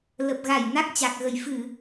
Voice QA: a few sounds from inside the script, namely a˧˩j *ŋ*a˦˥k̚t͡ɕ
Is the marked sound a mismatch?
yes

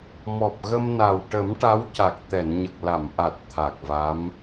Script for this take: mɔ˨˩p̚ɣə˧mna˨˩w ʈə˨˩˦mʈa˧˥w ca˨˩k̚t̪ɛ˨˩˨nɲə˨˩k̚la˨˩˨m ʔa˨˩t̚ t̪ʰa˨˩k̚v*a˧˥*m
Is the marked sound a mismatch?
no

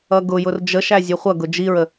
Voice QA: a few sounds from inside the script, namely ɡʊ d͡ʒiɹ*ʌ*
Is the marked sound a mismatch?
yes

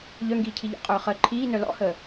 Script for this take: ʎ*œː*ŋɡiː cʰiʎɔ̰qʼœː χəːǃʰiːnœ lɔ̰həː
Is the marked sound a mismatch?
yes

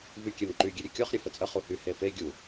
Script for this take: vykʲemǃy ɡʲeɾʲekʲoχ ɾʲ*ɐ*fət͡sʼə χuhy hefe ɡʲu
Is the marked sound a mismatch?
no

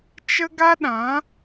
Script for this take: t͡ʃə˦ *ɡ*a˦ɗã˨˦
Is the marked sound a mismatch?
no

